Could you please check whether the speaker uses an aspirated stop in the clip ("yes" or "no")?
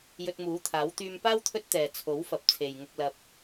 yes